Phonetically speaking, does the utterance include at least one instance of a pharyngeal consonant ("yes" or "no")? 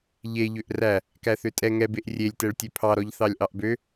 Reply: no